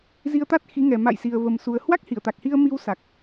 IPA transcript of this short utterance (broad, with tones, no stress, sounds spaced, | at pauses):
z i˧ ə̯ t̪ a˦˥ t̚ x i˨˦ ŋ ɛ˨˩ m a̰˧˨ j s i˨˩ ə̯ v ə˨˩ m s u˨˩ ə̯ h w a˦˥ k̚ h i˧˩ ə̯ t̪ a˨˩ k̚ h i˧ ə̯ m i˧ w s a˨˩ k̚